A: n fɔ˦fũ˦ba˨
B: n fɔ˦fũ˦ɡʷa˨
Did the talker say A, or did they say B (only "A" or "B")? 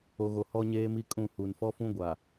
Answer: B